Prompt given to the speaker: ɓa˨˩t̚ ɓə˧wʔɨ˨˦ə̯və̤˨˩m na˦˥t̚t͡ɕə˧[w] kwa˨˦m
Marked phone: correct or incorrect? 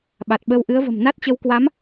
correct